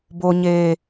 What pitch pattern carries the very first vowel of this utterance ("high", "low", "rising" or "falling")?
low